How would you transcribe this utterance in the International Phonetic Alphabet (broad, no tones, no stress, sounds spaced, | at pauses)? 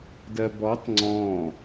d ɜ b ɔ tˤ ŋ͡ǀ ɔ̃